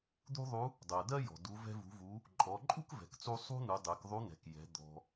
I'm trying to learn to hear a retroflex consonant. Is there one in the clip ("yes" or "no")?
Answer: no